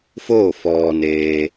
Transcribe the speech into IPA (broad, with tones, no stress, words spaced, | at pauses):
foː˥˨fɔː˩neː˩